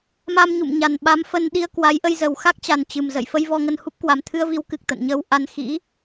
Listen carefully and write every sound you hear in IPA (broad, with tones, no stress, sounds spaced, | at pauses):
m a˧ m ɲ ṵ˧˨ m ɲ a˨˩ n ɓ a˨˦ m f ə˧ n ɗ i˧ ə̯ k w a˨˦ j ʔ ə˧ j z ə˨˩ w x a˦˥ k̚ t͡ɕ a˨˩ n t͡ɕ ɨ˨˩ m z ə̰˧˨ j f ə˧ j v ɔ˧ ŋ ə˧ n h u˦˥ p̚ k w a˨˩ m t̪ʰ ɨ˧ ə̯ v i˨˦ w k ɨ˨˩ k̚ t̪ ə̰˧˨ n ɲ əː˧ w ʔ a˧ n x ḭ˧˥